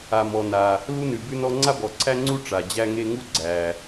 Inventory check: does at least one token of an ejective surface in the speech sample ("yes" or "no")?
no